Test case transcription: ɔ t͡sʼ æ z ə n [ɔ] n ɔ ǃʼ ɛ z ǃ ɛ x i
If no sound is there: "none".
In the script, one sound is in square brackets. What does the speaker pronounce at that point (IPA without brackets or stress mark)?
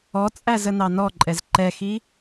ɑ